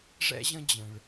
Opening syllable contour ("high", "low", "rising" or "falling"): high